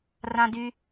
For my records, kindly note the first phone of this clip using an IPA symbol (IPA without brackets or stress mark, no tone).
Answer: r